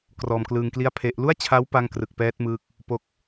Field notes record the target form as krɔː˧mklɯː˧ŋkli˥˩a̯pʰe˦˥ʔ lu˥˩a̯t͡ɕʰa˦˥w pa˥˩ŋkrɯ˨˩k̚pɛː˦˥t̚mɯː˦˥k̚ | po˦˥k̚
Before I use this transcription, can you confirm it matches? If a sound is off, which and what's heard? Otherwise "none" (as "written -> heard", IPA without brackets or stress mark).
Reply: none